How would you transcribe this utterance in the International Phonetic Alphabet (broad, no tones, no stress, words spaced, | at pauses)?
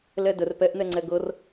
lɛdər pɛʔn̪ɛŋ͡ǀɛ ɡɤr